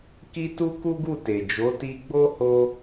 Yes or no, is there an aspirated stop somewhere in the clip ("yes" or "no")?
no